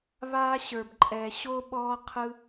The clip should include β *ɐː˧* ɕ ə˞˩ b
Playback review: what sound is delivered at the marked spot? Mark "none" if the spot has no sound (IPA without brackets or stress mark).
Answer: aː˧